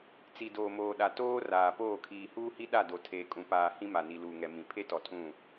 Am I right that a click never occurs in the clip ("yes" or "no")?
yes